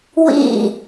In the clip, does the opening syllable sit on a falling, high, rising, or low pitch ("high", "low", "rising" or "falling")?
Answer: falling